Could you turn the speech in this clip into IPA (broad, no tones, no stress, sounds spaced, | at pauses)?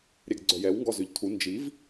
ɾʲ ɛ ɡ ɡ͡ǀ œ j ɛ w ŋ ɡ ɔ z ø ʎ tʰ u n d͡ʒ i v